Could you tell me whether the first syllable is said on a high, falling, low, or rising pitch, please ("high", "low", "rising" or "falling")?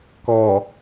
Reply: low